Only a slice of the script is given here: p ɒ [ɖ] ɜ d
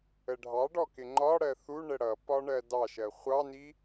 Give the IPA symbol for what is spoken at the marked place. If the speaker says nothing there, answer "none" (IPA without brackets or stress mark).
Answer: ɳ